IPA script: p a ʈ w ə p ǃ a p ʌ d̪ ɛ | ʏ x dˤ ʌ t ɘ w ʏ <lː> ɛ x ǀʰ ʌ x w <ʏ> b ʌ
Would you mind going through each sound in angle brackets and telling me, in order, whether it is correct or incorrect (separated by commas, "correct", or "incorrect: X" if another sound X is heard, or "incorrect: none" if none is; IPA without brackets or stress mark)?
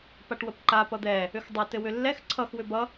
correct, correct